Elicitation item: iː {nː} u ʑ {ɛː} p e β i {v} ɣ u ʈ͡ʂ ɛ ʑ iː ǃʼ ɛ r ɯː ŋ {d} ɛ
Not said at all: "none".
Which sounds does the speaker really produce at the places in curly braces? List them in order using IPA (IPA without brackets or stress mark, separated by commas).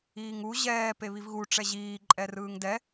ŋ, ɛː, v, d